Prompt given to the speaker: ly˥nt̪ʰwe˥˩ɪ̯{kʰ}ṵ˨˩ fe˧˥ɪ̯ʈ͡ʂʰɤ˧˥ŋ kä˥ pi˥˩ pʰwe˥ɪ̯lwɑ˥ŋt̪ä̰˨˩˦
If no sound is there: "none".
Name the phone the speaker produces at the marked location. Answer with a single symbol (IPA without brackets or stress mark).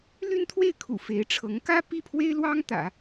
kʰ